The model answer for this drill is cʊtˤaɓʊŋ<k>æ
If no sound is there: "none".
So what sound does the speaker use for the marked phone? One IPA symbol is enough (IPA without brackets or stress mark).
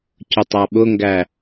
ɡ